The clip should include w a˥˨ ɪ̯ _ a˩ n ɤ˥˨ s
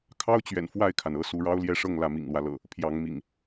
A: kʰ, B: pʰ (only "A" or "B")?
A